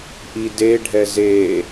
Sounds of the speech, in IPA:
ʔideɖʱɛ ze

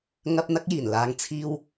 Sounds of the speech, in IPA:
ŋɐ˥p̚ n̪ɐ˥k̚jiː˨˩n laː˧ŋ t͡sʰiː˥w

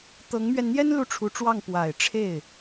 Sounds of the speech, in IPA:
t̪ɤ˧˥ŋmɥɛ˧nn̪jɛ˥n lu˥˩ʈ͡ʂʰu˧˥ʈ͡ʂwɑ˥˩ŋ pwa˨˩ɪ̯ʈ͡ʂʰe˥˩ɪ̯

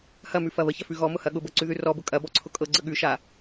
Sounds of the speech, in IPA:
hɐmʉfɐ βəçɐfʉ ɣɔmʊhɐ ɠʊbɤǀʉðʉ rɔbʊ kʼɐbɔǀʰʊ kʼɤɡ͡ǀə ɠʉʃa

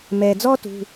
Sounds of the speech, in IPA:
mɛ˩d͡zɔ˦ tṳ˩˧˩

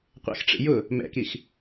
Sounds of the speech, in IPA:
qʷɛ̰xʈ͡ʂḭ jʊ | mɛ̰kix

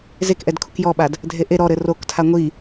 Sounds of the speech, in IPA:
zekʔɛd kʰukjɔɓad | dʱeʔe ɾɔ ɾɘroktʰa ŋʷi

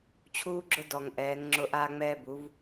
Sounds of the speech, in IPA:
t͡ɕʰuː˧ɡ͡ǁʊ˧dɔ˩ŋ ʔɛː˩˧ŋŋ͡ǁʊ˧ ʔaː˧ŋ͡mɛː˧ bu˩˧v

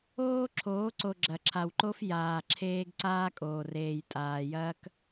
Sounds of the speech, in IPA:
oː˦ǁʰoː˨˦ǀo˨ ɡ͡ǁɐ˨ǁʰa˨wǃo˦f jaː˨ǁʰeː˦ɡ ǀaː˦kʼoː˨reː˨jtʼaː˨ jɐː˦k

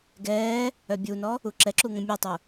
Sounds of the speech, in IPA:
ɡɛː | œbʲunɔ | uǁɛǁu ŋə̃mʲetˤu

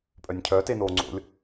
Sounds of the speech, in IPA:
pʼœnʲcʰœ tenoːŋ͡ǀo̰lʲ

